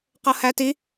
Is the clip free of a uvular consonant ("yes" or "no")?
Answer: no